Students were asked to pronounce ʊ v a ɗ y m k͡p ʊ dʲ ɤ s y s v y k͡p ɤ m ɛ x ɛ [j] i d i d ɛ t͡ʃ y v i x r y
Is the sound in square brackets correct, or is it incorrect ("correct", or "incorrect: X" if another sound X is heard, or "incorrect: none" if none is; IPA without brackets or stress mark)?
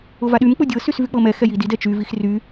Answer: correct